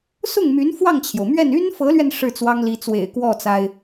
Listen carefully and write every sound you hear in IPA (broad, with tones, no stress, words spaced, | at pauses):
sʊ˥˩ŋmy˧˥n fwɑ˥˩ŋt͡ɕʰjo˩ʊ̯mɥɛ˥˩n y˥nfɤ˧˥lɥɛ˧n ʂɻ̩˥˩t͡swɑ˥ŋli˧˥t͡swḛ˨˩ɪ̯ kwɔ˥˩t͡sa˩ɪ̯